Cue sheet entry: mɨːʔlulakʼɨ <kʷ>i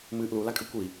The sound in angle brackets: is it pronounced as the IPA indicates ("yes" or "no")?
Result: yes